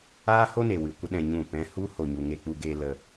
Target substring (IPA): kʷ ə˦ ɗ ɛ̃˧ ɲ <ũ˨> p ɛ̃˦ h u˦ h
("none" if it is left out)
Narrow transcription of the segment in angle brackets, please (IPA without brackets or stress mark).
ũ˦˨